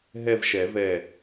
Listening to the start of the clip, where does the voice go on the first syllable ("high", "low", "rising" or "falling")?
falling